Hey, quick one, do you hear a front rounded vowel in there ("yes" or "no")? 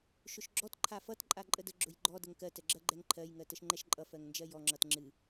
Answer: no